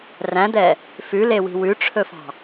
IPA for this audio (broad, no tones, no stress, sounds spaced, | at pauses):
r æ̃ d̪ ɛ | f ʉ l e w i̤ w ʉ ʈ͡ʂʰ ɵ f ɑ̤